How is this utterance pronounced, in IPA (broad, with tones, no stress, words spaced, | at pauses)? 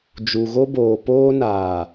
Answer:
d͡ʒu˨ɣo˦boː˨ poː˦ naː˨